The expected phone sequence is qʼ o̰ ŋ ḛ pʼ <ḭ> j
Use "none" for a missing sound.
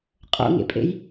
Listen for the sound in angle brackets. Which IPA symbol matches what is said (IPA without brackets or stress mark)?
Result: ḛ